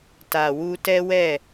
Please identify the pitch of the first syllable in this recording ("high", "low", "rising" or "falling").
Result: low